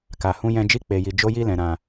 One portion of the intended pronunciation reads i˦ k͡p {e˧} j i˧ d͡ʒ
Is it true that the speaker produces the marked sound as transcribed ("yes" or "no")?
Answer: yes